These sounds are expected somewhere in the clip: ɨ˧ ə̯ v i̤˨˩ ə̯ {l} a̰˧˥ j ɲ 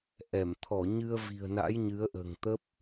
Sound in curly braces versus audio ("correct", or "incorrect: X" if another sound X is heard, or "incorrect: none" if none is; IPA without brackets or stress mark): incorrect: n